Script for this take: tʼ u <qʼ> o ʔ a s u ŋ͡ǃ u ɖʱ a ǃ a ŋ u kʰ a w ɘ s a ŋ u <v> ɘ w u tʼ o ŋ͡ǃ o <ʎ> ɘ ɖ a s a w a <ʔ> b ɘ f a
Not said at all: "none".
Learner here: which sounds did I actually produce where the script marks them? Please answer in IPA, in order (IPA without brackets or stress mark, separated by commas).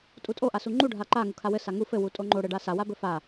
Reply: tʼ, f, ɽ, none